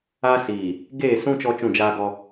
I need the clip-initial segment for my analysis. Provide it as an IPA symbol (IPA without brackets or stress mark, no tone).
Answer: aː